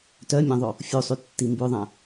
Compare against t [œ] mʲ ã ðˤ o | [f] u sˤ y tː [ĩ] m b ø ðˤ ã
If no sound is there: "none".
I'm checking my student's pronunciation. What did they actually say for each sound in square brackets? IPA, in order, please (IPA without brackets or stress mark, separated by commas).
œ, fʲ, i